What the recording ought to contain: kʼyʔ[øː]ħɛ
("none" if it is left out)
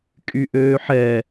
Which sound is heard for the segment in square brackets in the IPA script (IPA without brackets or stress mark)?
øː